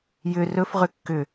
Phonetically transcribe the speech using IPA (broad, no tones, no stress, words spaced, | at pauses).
jʏ rɵf ʁʏkːʏ